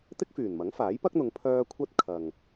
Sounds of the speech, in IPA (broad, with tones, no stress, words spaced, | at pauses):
t̪ɪ˥k̚fyː˨˩nmɐ˨˥ŋfaː˨˥j pɐ˥k̚n̪ʊ˨˧ŋ pʰœː˥ kʷʰɐ˥t̚ kʰɐ˨ŋ